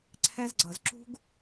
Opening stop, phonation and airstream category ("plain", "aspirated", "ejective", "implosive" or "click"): click